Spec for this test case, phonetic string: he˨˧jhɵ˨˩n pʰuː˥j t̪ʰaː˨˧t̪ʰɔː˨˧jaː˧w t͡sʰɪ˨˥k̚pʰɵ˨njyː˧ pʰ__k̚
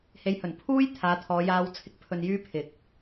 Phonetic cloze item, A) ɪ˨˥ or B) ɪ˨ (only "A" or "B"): B